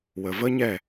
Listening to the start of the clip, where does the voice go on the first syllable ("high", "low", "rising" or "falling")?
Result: low